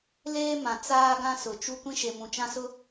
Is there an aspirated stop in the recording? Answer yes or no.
no